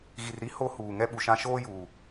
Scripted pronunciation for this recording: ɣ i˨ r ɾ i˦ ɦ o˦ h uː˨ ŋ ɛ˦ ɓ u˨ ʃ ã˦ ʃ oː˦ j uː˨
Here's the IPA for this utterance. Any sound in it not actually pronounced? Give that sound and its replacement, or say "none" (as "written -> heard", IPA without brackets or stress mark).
ɦ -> h